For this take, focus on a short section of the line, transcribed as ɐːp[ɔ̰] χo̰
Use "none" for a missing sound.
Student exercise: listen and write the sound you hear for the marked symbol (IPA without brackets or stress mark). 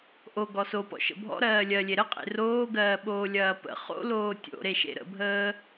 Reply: ə̰